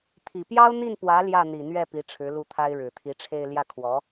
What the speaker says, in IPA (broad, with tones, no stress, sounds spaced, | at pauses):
t̪ʰ i˨˩ p j ɑ˥ ʊ̯ n̪ i˥˩ n p w ä˧˥ l j ä˥˩ n̪ i˨˩ n̪ ɥ ɛ˥˩ p i˧˥ ʈ͡ʂʰ ɻ̩˧˥ l u˥˩ t̪ʰ a˥ ɪ̯ ɻ ɻ̩˨˩ t̪ʰ i˧˥ ʈ͡ʂʰ e˥˧ ɪ̯ l j ä˥˩ kʰ w ɔ˧˥